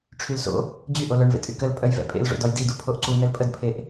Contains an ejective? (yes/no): yes